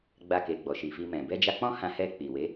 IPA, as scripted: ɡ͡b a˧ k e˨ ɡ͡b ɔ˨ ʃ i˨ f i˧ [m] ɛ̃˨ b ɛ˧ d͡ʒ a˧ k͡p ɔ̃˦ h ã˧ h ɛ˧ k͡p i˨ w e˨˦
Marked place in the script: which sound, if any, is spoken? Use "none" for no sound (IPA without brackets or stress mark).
m